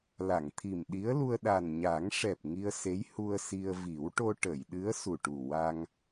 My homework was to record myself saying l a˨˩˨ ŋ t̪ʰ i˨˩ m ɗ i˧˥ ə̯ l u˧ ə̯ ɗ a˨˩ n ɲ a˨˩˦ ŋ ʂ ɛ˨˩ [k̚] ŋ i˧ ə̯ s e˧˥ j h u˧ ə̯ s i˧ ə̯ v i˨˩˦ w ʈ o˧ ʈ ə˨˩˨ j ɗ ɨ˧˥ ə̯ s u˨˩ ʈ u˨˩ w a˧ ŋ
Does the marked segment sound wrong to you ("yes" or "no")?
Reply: yes